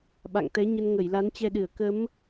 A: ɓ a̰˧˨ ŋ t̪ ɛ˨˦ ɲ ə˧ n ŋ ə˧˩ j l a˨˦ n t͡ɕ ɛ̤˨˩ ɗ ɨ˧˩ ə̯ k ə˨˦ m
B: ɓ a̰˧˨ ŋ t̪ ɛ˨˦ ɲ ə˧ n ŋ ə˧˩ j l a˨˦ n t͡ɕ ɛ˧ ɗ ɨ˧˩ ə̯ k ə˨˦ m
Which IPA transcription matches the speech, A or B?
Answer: B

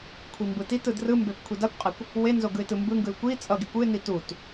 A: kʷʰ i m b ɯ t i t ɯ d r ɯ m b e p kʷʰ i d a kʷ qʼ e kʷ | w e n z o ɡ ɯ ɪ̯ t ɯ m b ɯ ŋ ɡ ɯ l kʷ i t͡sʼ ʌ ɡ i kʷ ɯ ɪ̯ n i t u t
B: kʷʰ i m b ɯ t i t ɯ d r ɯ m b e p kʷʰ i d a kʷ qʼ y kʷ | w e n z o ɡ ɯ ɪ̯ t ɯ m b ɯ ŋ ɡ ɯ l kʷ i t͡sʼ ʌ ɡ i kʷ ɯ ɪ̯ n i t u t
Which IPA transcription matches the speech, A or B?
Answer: A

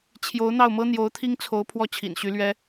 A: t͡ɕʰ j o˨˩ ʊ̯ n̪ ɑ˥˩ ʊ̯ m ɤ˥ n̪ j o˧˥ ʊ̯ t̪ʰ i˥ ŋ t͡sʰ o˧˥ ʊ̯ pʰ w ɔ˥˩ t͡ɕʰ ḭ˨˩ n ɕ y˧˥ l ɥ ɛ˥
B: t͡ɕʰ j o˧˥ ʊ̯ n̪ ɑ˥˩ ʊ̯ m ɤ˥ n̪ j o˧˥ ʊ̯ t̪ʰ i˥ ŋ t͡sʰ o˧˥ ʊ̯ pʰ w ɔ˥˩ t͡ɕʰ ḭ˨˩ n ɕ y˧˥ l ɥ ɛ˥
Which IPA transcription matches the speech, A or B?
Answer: B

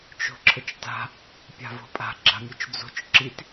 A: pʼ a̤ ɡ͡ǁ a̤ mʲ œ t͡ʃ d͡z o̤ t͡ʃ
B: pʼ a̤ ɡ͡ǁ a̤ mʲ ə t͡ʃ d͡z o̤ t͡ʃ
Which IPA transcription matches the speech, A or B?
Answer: A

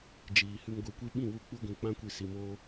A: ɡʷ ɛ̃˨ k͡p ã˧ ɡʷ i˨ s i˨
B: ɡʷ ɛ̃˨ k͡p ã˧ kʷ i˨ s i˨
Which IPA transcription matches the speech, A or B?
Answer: B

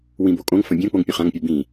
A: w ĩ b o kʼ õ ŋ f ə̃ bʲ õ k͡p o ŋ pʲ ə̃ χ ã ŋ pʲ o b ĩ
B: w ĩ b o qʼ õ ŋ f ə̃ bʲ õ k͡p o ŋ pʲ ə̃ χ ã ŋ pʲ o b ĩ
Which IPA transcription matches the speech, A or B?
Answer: A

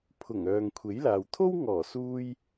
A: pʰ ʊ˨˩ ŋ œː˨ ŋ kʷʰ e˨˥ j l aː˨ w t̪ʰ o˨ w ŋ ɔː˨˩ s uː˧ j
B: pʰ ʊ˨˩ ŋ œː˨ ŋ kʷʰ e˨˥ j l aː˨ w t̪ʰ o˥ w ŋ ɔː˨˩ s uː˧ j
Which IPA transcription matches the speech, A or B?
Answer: B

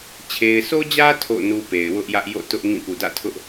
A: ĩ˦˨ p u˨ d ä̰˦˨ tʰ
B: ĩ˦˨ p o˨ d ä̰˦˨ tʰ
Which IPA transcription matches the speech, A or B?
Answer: A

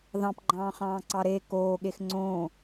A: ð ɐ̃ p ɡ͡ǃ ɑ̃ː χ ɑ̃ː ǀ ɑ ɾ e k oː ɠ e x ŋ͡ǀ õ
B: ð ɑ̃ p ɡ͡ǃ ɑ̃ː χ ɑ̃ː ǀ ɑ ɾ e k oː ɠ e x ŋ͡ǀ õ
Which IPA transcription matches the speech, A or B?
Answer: B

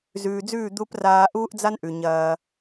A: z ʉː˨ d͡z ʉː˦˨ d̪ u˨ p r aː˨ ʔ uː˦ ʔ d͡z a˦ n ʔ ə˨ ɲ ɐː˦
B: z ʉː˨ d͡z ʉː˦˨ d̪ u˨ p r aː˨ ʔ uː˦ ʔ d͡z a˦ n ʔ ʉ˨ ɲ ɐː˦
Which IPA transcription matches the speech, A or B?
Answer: B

